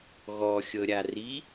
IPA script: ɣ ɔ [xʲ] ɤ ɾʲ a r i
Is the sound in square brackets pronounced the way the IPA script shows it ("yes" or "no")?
yes